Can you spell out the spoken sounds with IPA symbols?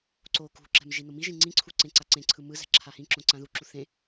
ǀ o k ṳ ǁ ɛ̤ m ʒ i n o m i ʒ ĩ ŋ͡ǀ ĩ ǀʰ u ǀ ẽ ǀ a ǀ ẽ ǀʰ ɯ m ɯ z ɛ̤ ǁʰ a h ĩ ǁ õ ǀ ã ð u ǁ u θ ẽ

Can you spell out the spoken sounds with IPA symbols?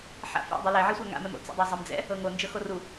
ħ a̰ f ɛ̰ dˤ u l ɛ ʕ i sʷ a ŋ a̰ m ɛ m o̰ t͡s ɛ̰ dˤ o zˤ ɛ m d͡z ɛ̰ | ɤ ŋ o n d͡ʒ ɤ x o r u

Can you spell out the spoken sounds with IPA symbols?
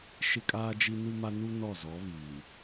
ʃ ɪ˦ kʼ aː˦ d͡ʒ i˦ n u˦ m a˦ n u˦ n ɔ˦˨ z ɔ˨˦ β iː˨

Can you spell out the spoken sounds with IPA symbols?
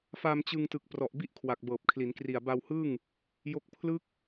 f a˧ m t͡ɕ ɯ˧ ŋ t ɯ˨˩ k̚ p r ɔ˨˩ ʔ b i˥˩ ʔ kʰ w a˨˩ k̚ b ɤː˨˩ p̚ kʰ l i˩˦ n k r i˨˩ a̯ b a˧ w h ɯ˥˩ ŋ | j o˦˥ k̚ pʰ l ɯ˦˥ k̚

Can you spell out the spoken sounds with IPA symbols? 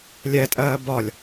lʲ ɛ tʼ ɜː b ɒ lʲ

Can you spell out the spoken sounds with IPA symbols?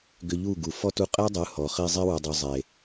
ɡ ʏ˧ ʎ u˦˨ ɡ u˨ f ɔ˦ t u˧ qʼ e˦ dˤ ɯ˨˦ h ɔ˨ χ i˧ zˤ i˦ w u˨ dˤ u˨ zˤ e˨

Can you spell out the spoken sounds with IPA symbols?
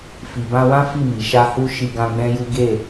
f i˨ b ã˧ w ã˦ f i˦˨ m i˨ ʃ a˧ h u˧ ʃ i˧ ɡ ã˦ ɡ͡b ɛ̃˦ j u˦ ɡ e˦˨

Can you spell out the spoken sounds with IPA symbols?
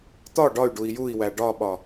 t̪ ɒ ɖ ɒ y̯ ɖ u i̯ j u i̯ w æ ɖ ɒ ɓ ɒ

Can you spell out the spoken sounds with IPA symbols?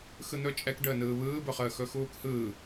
x ɯ n̪ ɵ t͡ʃʼ ɛ k ɖ əː n ɯː β ɯː b ɵ χ əː x ɵ x uː k h ɯː

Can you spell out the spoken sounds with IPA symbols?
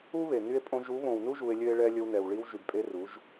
u˦ β e˨ n y˧ e̯ pʼ õ˧ ʒ u˨˦ β õ˨ w n u˦ ʒ u˧ e̯ lʲ ø˦ e̯ ɭ ɛ˦ lʲ ɵ˧ w n ɛ˨ w ɭ i˧ w ʒ y˨ b pʼ e˧ r u˨˦ ʒ

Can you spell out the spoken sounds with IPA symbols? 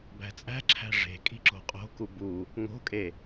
b æ̤ t͡sʼ æ̤ ǁʰ æ̤ ʐ e̤ kʼ i̤ ǁ o̤ qʼ o̤ k u b u | ŋ o̤ kʼ e

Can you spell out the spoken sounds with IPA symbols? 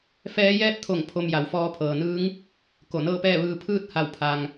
f ɛː˧˥ j ɛː˥˨ p̚ t̪ʰ o˧˩ ŋ pʰ o˧ m j a˩ w f ɔː˧ pʰ ɤː˩ n ɯː˧˥ ŋ | k o˧˩ n ɤː˥˨ p ɛː˥˨ ʋ ɯː˧ pʰ ɯː˥˨ t̚ h a˧˩ w pʰ a˩ ŋ

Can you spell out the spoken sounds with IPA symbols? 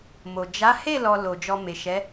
m o˨ d͡ʒ a˨˦ h e˦˨ l ɔ˨ l o˨ d͡ʒ ɔ˧ m e˨ ʃ ɛ˨˦

